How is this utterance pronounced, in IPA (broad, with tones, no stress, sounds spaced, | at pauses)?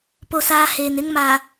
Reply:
p o˦˨ s aː˦ h eː˨ n ɪ˦ ŋ m aː˨